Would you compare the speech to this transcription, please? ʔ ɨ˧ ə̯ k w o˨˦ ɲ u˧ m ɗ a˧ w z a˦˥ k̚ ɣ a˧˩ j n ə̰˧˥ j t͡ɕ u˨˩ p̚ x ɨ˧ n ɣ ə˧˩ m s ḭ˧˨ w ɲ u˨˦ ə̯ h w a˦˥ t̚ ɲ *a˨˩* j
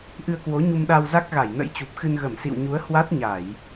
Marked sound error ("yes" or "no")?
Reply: yes